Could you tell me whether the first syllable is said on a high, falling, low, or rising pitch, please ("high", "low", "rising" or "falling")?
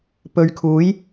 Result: low